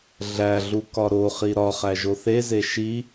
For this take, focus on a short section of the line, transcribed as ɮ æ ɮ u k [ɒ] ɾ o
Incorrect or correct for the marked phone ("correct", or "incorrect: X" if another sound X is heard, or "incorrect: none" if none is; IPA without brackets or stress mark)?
correct